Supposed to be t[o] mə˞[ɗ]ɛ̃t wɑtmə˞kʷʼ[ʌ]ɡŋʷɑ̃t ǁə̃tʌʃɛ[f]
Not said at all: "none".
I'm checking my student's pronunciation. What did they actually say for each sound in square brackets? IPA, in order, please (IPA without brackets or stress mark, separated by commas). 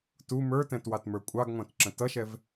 u, t, ɑ, v